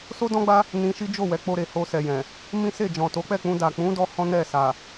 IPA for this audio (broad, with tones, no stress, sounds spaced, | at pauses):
s o˦ d ɔ̃˦ ɡ͡b a˦ | n ĩ˧ ʃ i˦ d͡ʒ o˦˨ w ɛ˨˦ k͡p o˧ ɾ e˨ h o˧ s ɛ˨ j ɛ̃˨ | m ĩ˦ s e˦˨ d͡ʒ ɔ̃˨ t o˨˦ k͡p ɛ˦˨ k͡p ũ˧ d a˨ k͡p ũ˨˦ d ɔ˧ h ɔ̃˦ n ɛ˦˨ s a˨